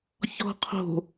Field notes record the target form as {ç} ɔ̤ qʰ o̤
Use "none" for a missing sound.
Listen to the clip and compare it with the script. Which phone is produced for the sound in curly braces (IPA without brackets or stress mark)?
ç